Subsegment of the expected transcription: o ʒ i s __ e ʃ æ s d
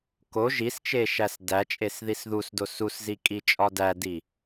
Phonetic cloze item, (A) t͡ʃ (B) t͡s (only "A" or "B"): A